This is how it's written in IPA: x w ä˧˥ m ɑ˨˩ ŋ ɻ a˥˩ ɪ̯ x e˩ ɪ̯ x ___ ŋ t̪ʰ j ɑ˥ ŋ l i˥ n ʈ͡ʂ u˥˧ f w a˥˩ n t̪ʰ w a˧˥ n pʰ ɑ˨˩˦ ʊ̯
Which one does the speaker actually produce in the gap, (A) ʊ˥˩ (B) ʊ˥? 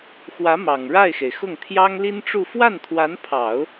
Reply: A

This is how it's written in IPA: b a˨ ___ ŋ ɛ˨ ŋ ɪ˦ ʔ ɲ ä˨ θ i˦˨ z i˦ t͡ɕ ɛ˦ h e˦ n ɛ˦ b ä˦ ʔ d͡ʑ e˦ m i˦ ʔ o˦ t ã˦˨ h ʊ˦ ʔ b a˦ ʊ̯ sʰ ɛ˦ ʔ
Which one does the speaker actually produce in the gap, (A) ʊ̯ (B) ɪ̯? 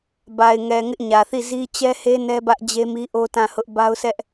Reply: B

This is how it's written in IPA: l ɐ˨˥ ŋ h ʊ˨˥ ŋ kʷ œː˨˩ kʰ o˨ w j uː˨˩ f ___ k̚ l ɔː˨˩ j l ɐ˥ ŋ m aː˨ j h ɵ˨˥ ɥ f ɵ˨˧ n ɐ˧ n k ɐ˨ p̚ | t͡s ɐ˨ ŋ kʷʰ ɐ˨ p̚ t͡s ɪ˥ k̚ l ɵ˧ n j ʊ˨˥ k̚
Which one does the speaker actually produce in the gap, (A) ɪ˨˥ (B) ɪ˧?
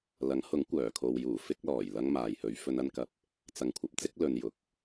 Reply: B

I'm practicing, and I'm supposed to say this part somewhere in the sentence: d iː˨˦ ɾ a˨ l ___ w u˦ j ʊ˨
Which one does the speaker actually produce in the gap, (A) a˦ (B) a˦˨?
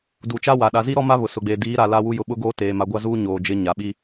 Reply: A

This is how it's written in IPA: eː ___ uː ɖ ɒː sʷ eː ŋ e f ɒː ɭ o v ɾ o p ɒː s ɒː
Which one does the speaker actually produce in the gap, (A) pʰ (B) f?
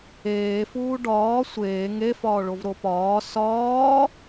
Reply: B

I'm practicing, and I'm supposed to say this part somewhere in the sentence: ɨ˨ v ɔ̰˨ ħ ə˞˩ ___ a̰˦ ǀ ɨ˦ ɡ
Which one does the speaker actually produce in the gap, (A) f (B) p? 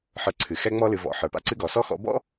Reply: B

